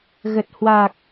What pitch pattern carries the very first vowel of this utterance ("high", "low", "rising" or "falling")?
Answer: low